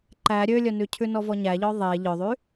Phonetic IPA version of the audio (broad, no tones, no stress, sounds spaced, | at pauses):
ǃ æ ɾʲ ø lʲ œ n ʉ cʰ ʉ n ɔ v ɔ ɲ æ ʎ ɔ ðˤ e ʎ œ ðˤ y